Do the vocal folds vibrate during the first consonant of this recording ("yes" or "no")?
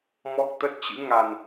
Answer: yes